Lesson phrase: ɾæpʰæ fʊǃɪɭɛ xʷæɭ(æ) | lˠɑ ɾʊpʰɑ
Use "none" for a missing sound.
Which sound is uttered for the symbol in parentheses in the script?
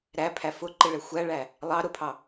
æ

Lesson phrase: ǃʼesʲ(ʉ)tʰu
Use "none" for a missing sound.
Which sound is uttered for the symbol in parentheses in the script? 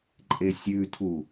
ʉ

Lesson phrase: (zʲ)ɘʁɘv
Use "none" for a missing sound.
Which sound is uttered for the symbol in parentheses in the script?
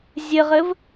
zʲ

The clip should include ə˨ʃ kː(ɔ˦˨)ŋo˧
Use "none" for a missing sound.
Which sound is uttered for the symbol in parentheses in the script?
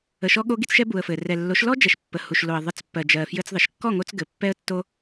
ɔ˦˨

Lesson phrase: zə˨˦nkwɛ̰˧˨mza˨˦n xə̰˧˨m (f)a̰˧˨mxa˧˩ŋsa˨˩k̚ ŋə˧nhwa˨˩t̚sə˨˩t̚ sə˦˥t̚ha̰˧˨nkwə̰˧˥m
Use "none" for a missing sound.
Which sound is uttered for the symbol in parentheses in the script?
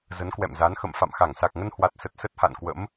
f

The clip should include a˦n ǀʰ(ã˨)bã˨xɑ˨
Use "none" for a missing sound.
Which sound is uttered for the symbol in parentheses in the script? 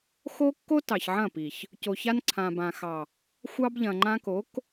ã˨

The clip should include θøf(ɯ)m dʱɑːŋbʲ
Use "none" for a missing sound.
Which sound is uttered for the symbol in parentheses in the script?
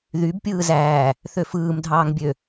ɯː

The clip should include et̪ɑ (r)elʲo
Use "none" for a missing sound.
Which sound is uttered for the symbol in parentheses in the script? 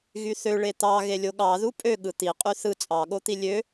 ɣ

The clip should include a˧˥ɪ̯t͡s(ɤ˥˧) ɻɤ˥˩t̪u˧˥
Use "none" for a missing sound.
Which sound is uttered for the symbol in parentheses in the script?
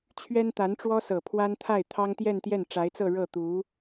ɤ˥˧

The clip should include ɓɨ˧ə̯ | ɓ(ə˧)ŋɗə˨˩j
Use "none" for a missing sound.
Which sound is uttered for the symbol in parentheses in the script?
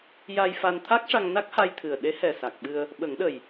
ə˨˩˦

